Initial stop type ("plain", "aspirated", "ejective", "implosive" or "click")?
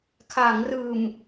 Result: aspirated